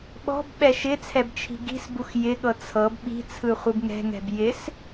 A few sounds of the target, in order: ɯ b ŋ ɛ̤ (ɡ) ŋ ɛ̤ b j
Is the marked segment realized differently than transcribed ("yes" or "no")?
yes